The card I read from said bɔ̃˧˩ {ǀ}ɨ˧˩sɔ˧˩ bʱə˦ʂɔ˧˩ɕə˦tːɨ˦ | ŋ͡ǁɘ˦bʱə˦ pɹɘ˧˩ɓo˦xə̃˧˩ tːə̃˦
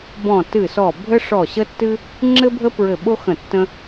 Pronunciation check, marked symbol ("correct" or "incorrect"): incorrect